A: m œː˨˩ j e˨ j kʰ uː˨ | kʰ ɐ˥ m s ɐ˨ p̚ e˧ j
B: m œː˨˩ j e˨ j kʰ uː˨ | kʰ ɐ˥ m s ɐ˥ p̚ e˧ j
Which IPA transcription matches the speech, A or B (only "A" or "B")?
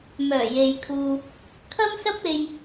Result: B